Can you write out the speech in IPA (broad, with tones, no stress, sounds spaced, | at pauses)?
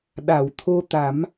ɗ a˨˩˨ w t̪ʰ o˧ t̪ a˨˩˦ m